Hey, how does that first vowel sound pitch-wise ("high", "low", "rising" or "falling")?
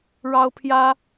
high